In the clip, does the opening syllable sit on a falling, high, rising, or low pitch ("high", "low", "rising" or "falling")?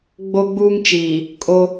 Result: high